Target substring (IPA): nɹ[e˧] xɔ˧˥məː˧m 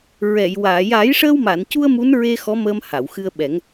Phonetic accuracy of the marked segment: correct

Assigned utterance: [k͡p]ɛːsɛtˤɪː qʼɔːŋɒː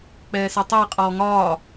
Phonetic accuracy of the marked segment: correct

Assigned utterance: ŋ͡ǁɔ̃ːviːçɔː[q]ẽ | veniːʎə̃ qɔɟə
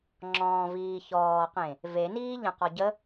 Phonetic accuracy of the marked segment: correct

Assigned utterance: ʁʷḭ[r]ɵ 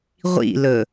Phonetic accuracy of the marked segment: incorrect: l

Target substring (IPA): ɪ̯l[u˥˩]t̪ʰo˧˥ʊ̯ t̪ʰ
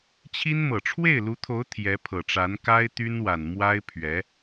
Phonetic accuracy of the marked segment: incorrect: u˧˥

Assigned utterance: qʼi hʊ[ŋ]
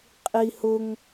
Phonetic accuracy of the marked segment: correct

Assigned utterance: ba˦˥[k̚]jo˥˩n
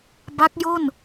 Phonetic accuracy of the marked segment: correct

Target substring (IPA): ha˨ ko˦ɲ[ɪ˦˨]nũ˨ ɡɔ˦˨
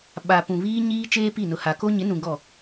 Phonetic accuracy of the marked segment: incorrect: ɪ˨˦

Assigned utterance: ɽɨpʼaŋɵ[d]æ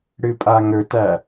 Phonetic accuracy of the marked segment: incorrect: t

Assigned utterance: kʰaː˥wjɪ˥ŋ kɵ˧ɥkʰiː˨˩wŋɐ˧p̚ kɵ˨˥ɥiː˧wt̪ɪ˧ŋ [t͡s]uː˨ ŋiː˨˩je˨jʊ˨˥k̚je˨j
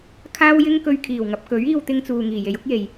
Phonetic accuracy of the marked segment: correct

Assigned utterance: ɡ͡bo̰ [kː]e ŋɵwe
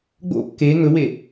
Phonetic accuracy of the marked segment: correct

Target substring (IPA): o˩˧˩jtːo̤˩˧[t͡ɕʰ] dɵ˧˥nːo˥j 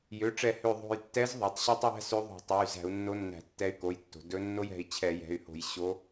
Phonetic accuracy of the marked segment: incorrect: none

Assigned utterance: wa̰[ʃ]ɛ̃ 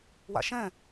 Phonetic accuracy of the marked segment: correct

